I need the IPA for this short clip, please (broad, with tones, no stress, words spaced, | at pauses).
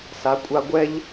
sa˨˦kʷʼa˧ɡʷɛ˦ʎ